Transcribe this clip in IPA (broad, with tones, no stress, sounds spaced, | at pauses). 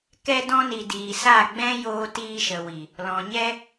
k ɛ˧ d ɔ̃˧ n i˨ d iː˨ s a˦˨ ɡ͡b ɛ̃˦ j oː˧ t iː˧ ʃ ə˨ w i˨ | l ɔ̃˨ ɲ ɛ˦